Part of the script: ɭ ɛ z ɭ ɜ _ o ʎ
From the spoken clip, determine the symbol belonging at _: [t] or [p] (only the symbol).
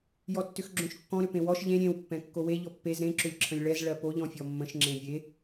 p